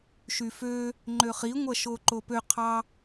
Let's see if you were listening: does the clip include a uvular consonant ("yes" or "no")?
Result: yes